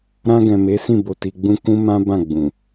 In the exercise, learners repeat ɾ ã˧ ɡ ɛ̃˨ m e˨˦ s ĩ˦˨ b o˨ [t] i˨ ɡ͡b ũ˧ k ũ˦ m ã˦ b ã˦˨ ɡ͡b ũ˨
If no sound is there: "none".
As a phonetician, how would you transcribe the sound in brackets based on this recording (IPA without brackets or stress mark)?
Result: t